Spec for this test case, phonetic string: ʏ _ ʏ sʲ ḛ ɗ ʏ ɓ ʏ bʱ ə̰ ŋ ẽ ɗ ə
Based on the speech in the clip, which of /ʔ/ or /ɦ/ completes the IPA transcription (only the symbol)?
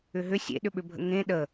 ɦ